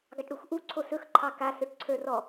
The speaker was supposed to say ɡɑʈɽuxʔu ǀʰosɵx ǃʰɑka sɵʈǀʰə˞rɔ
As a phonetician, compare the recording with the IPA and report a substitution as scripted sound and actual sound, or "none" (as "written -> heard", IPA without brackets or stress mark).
none